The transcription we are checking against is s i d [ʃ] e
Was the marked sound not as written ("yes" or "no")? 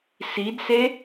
yes